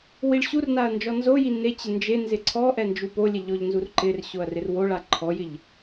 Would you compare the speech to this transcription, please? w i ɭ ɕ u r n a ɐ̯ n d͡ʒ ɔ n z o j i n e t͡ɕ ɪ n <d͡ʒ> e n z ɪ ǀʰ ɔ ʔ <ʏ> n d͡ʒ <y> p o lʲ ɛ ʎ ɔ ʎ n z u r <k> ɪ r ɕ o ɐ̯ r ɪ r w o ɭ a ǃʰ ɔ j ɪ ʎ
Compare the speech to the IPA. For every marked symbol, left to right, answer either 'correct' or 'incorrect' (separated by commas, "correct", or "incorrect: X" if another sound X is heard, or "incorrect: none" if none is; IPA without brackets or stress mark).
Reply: correct, incorrect: ɛ, incorrect: u, incorrect: ǃ